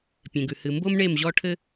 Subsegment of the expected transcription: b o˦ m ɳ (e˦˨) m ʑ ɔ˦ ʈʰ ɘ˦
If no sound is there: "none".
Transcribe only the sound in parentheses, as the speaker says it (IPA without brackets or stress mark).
e˦˨